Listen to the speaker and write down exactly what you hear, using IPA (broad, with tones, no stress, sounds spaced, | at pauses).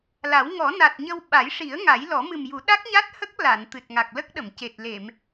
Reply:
l a˨˩˦ w ŋ ɔ˨˩˦ n a˨˩ t̚ ɲ ə˧ w ɓ a˨˩˦ j ʂ i˨˩˦ ə̯ ŋ a˨˩˦ j l ɔ˨˩˦ m ɨ˨˩ m j u˨˩˦ ɗ a˦˥ k̚ ɲ a˦˥ t̚ h ə˦˥ k̚ l a˨˩˨ n t̪ ɨ˨˩ t̚ ŋ a˨˩ k̚ l ə˦˥ k̚ ɗ ə˨˩˨ m c e˨˩ t̚ l e˨˩˨ m